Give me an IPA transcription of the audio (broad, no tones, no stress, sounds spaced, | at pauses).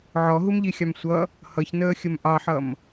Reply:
ʕ ɔ ɦ u m ʎ i xʲ ɑ m sʷ ʌ | h ʌ ç n əː xʲ ə m ʔ ɑ ħ ʌ m